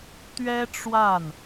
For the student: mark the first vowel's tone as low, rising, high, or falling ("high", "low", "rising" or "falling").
high